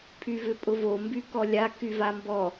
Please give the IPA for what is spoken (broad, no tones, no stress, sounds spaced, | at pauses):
pʰ y v ʏ pʼ ʊ v o m b y k ɔ lʲ a k y v a m b ɔ